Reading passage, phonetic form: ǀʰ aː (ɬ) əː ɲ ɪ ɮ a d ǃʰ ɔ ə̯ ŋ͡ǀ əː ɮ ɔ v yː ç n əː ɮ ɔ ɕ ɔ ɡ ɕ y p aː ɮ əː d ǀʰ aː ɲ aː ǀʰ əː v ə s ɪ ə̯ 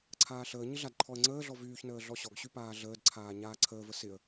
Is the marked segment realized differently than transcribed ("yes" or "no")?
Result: no